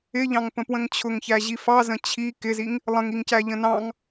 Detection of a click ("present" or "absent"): absent